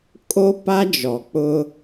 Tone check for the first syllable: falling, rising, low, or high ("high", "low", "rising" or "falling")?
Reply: high